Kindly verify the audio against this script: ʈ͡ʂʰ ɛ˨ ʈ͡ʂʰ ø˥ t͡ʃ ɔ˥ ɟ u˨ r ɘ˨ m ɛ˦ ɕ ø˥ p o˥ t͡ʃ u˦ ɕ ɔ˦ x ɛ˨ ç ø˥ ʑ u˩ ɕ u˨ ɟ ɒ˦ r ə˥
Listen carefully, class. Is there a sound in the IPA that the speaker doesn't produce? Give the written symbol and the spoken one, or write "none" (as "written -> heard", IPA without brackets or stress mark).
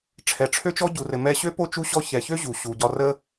x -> ç